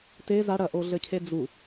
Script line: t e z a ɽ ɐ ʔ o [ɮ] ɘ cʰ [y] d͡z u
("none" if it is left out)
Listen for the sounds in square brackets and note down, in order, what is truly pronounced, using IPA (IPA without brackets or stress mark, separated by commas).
ɮ, e